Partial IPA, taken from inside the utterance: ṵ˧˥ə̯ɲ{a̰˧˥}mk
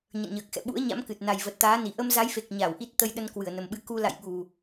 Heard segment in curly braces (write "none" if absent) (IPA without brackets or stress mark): a̰˧˥